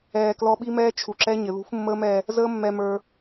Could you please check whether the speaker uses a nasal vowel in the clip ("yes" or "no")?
no